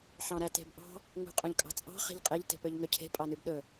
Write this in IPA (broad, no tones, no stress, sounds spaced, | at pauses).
ħ ɑ̃ ɾ æ t e̤ b ʔ ɑ̤ | ŋ ṳ qʼ ũ ʎ kʼ ɑ̤ t͡sʼ ɑ̤ χ e̤ ʎ qʼ e ʎ t e̤ p ø ʎ ŋ ø cʰ e̤ pʼ ɑ n y b ɗ ɵ